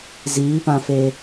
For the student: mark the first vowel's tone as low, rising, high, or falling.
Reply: rising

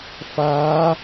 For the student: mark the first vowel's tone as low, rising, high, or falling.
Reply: rising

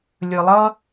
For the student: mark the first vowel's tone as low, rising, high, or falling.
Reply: low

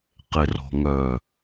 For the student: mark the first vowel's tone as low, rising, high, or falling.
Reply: low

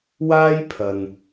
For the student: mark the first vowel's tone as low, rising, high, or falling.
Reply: high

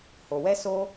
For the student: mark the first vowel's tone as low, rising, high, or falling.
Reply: low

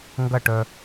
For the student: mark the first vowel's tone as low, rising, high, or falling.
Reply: falling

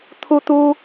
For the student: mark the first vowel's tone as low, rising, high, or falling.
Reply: high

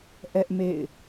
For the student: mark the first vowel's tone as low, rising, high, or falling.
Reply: high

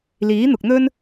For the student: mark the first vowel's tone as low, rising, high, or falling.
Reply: rising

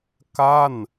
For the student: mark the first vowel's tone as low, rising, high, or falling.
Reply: falling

